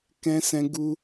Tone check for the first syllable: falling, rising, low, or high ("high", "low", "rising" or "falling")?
high